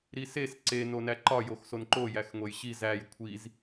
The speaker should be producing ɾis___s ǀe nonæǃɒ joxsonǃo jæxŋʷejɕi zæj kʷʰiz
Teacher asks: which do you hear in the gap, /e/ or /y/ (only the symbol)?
e